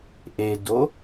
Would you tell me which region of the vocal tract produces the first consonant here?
throat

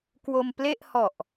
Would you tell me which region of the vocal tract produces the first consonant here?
velum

